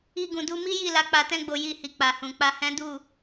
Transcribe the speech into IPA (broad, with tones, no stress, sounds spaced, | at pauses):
i˧ ɡ ũ˨ d u˧ m i˦ j i˦˨ l a˨˦ k͡p a˧ t ɛ̃˦ ɡ͡b o˧ j i˧ h i˨ k͡p a˨ h ũ˨ k͡p a˧ h ɛ̃˦ d u˦˨